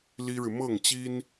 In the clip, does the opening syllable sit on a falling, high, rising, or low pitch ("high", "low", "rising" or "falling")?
high